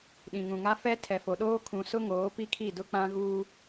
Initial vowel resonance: nasal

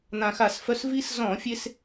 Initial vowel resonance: nasal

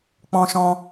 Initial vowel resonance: nasal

